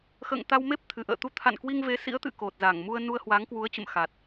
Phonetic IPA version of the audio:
xə̰ː˧˨ŋ t̪a˧wme˦˥p̚ t̪ʰɨ˧˩ʔə̰ː˧˨ t̪u˧t̪ʰa̰˧˨nkwi˧ŋ ve˨˦sḭ˧˥ə̯t̪ɨ̰˧˨ ko˨˩t̚za˧˩ŋ mu˧ə̯ nu˧ə̯hwa˨˦ŋkwu˨˦ə̯t͡ɕə̰˧˨m xa˨˩t̚

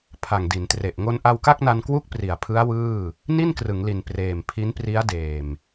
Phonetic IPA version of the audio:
pʰa˨˩ŋdi˩˦ntre˨˩ʔ ŋo˧nʔa˧wka˥˩k̚na˧n kwu˥˩k̚pri˩˦a̯pʰɯ˦˥a̯ wɯː˥˩ | ni˥˩nkrɯ˩˦ŋli˨˩n preː˨˩mpʰi˦˥npri˦˥a̯deː˨˩m

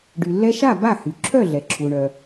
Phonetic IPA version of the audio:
ɖy˩lːɛ˧ʃa˥˩ ba˥˩hy˩ ǁʰœ˥˩ɮɛ˩ǁʰu˩ɳœ˩

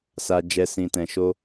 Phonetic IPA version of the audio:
sa˨d͡ʒɛ˨ sĩ˨tɛ̃˨ʃo˧

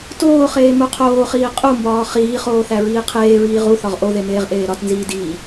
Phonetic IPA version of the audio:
toːχeː muqʰoːχiː qʼumbɒː χiːχoːθæ ɹiːqʰeːɹiː ʁu θɒʁʔoðe meːʁʔeːɾɒt nziːdiː

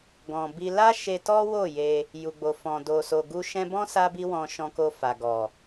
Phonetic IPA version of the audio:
ɡɔ̃˨bi˧ la˦ ʃe˧tɔ˦ wo˦˨ je˧ | ju˨ɡ͡bo˨ fɔ̃˨do˨so˨ɡu˧ ʃɛ̃˧bɔ̃˦ sa˦bi˦wɔ̃˧ ʃɔ̃˧ko˧ fa˨ɡɔ˨

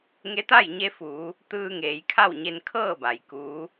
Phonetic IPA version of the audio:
ŋe˧˥t̪a˥˨jɲe˧fuː˩˧ | t̪ɯː˧ŋeː˩˧jkʰa˥˨w ɲe˧nkʰɤː˥˨ ba˩jkuː˧˥

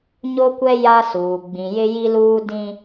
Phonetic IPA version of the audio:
ɲo˦kʷɛ˦ ja˦suː˨ ɡ͡bĩ˨jɪ˦ji˦luː˦ dĩ˦

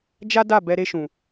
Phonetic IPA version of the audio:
d͡ʒa˦da˦˨ bɛ˧ɾe˧ʃũ˨

